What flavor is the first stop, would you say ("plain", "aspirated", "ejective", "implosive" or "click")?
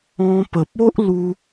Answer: plain